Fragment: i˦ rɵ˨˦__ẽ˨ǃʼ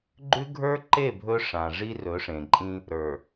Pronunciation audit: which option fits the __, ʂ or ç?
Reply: ʂ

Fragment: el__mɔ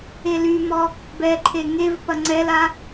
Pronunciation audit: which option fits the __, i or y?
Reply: y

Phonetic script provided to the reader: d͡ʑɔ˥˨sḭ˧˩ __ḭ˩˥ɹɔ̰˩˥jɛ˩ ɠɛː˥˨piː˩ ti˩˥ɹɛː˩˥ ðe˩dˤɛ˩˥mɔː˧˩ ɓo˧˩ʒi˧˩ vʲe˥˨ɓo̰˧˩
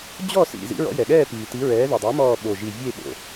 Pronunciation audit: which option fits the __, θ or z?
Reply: z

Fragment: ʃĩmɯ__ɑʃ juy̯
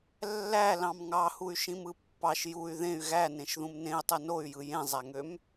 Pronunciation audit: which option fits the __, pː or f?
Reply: pː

